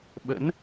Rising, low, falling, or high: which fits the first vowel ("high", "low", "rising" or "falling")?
rising